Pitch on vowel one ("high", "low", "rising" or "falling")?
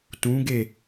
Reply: rising